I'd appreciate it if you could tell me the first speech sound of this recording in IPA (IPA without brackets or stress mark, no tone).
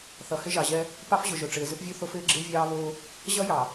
θ